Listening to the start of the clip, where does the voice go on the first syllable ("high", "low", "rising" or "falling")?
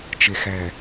low